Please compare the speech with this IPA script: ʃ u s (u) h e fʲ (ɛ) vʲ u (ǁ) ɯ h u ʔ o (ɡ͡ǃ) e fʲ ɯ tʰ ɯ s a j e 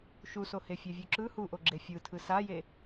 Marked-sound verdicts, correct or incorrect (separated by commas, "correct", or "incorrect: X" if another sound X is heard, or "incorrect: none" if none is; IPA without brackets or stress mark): incorrect: o, correct, correct, incorrect: ɡ͡ǁ